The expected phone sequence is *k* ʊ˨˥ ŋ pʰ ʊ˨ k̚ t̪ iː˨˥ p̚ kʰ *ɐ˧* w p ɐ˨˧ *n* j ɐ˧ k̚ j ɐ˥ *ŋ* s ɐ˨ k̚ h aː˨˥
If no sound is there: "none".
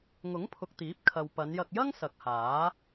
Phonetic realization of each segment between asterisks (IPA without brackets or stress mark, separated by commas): ŋ, ɐ˨, n, ŋ